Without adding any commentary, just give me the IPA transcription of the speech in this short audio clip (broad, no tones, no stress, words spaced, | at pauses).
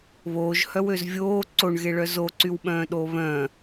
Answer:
βoːʒhœwøz vʲoː ǀoɳɣeɭœ zoǀywɓœ̃ːɗoː βœ̃